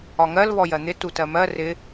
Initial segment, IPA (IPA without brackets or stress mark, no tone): ɒ